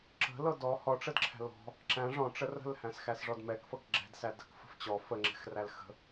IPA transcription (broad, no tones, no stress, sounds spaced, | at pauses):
ǁ ə̤ l ɤ d ɔ h ɔ ʈ͡ʂ ə d ǁʰ æ̤ l ɔ̤ | ǁ æ̃ ʐ ɔ̃ ʈ͡ʂ ə r ə̤ l h æ̃ s x æ s ʐ ɔ d m ɛ k f ɤ k ɡ͡ǁ ɛ̤ d s æ d ə̤ k f ə̤ f t͡ɕ ɔ f ə ŋ͡ǁ ɛ̤ x r æ l x ə̤